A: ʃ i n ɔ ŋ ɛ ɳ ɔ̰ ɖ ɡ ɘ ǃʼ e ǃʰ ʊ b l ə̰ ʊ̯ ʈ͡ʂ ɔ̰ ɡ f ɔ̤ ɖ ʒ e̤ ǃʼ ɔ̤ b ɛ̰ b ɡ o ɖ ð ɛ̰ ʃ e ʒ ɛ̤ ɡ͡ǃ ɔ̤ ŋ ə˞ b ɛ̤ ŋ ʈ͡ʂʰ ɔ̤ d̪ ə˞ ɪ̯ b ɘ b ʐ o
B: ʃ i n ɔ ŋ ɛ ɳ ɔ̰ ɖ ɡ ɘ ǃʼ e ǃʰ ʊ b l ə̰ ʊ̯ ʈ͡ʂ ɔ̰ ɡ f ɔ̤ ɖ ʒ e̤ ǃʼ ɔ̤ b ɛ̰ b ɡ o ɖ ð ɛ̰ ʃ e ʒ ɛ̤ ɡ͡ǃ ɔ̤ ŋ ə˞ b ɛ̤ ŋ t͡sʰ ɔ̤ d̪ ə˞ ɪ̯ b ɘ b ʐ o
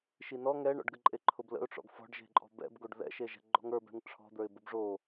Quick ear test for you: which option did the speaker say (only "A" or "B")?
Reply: A